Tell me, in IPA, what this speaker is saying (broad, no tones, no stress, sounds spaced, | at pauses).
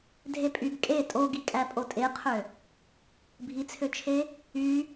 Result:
dʱ e pʼ y ɡ kʼ e tʼ o ɡ i kʼ æ pʼ o tʼ e qʰ ø | bʱ i t͡sʰ ø t͡ʃʰ e | y